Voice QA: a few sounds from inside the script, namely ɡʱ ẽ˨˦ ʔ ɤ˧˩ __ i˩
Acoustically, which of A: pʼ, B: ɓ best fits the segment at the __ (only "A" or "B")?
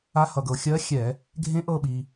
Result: B